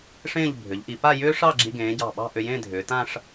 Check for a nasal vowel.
present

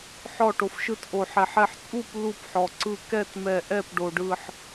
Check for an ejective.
present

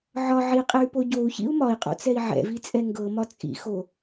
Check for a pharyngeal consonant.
present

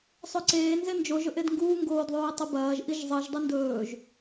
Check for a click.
present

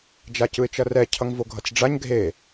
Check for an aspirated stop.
present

